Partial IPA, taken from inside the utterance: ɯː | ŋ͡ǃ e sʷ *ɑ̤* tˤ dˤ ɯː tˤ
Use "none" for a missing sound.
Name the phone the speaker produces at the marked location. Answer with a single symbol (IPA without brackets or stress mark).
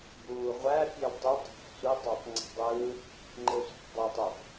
ɑ̤